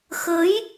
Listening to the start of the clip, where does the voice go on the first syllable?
rising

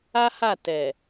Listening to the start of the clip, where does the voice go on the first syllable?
high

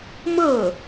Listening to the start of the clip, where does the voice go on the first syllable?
falling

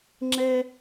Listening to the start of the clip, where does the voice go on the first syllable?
high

